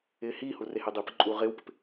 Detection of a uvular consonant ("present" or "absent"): present